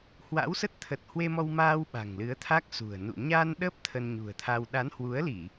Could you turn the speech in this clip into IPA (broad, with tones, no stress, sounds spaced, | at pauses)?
h w a̰˧˥ w s ə˦˥ t̚ t̪ʰ ə˨˩ t̚ h w e˧ m ɔ˧ w m aː˧ w ɓ a̤˨˩ ŋ l ɨ˨˦ ə̯ t̪ʰ a˦˥ k̚ s ṳ˨˩ ə̯ n ṵ˧˨ ɲ a˧ n ɗ ə˦˥ p̚ t̪ʰ ə˧ n ɲ ṳ˨˩ ə̯ t̪ʰ a˧ w ɗ a˨˦ n h w u˨˦ ə̯ l i˧˩˨